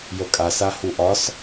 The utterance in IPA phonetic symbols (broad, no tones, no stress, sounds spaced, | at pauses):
j ə kʼ a s a h u ʔ ɒ s